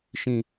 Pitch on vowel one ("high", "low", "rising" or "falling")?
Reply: low